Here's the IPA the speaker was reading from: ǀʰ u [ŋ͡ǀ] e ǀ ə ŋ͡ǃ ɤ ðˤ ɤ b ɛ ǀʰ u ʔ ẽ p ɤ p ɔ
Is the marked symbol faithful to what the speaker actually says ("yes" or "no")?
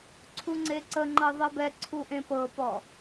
yes